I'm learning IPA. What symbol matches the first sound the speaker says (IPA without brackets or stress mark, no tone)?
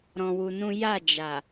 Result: ɾ